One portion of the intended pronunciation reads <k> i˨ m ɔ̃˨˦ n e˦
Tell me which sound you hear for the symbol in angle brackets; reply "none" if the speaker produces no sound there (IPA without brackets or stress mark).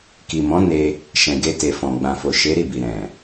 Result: k